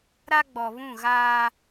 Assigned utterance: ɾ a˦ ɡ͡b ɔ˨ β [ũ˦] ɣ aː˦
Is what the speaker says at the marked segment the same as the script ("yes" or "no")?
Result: no